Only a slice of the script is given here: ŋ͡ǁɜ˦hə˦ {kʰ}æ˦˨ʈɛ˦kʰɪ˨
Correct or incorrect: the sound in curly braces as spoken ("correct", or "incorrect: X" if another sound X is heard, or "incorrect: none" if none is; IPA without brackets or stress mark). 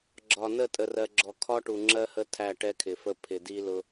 incorrect: tʰ